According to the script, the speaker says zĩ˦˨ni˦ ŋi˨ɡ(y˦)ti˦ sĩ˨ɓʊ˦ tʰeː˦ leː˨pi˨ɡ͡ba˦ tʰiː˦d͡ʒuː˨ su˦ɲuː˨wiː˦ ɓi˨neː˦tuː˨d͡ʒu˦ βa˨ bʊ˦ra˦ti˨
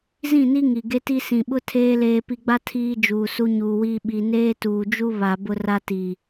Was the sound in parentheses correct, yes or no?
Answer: no